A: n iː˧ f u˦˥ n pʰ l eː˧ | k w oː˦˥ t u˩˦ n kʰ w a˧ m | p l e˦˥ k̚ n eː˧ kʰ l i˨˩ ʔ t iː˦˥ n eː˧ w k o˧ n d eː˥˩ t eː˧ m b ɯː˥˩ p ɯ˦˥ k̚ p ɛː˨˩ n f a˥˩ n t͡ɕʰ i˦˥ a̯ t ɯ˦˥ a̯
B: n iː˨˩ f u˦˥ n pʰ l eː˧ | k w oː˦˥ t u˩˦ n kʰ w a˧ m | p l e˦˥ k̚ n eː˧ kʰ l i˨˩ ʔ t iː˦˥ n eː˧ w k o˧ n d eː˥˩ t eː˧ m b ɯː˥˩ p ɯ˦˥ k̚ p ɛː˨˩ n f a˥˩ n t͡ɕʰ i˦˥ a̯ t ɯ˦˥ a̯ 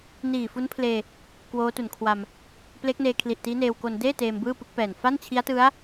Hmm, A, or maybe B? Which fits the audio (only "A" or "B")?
B